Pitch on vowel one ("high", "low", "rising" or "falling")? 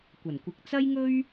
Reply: low